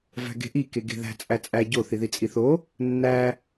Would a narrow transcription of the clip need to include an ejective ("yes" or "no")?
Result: yes